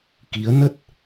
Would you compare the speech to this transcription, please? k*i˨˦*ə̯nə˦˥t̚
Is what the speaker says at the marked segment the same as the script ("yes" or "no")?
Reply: yes